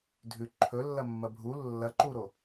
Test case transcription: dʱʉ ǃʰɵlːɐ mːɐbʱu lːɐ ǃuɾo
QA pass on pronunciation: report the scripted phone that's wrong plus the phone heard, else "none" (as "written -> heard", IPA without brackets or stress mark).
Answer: none